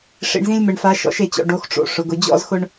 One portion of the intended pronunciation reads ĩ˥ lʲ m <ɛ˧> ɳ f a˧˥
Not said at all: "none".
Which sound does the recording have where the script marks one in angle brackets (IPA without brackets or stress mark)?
ɛ˧